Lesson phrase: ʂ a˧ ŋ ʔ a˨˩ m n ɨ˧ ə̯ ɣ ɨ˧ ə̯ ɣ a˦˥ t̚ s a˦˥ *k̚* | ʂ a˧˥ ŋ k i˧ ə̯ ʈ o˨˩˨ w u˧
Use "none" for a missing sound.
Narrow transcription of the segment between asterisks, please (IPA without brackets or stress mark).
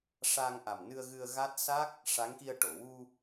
k̚